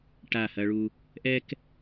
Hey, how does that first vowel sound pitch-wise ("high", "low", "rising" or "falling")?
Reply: falling